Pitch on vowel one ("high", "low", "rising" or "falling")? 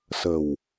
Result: low